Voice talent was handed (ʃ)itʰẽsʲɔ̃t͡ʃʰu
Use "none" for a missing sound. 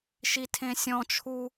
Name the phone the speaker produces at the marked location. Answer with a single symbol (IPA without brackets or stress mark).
ʃ